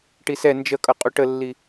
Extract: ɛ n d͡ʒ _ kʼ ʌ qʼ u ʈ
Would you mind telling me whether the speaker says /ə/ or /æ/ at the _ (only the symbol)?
ə